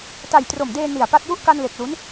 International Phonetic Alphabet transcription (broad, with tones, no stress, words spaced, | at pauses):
ta˨˩j tro˨˩mdeː˧ ni˨˩a̯pa˦˥t̚ ju˦˥ʔka˧nle˨˩k̚ lu˦˥n